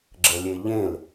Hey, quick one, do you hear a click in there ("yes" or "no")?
yes